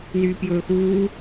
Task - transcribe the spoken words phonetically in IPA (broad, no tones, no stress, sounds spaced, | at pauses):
n yː p j ɵː x uː